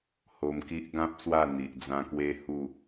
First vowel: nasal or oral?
oral